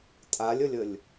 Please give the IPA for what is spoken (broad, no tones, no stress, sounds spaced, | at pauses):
tʼ a lʲ ə lʲ ə lʲ